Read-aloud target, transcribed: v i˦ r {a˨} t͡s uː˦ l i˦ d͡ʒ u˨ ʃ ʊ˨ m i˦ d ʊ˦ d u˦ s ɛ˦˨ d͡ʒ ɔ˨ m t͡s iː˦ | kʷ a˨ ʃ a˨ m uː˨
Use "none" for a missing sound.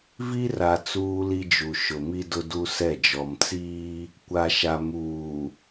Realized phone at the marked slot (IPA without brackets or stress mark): a˨